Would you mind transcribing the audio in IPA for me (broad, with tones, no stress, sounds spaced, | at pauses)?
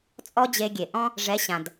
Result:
t͡sʼ ɔ˦ d͡ʑ e˧ ɡʲ e˨ ʔ ɔ̃˦ | ʐ ɛ˨˦ ɕ ã˨ d